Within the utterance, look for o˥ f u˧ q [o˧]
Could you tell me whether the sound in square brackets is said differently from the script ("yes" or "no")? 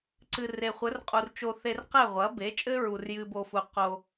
no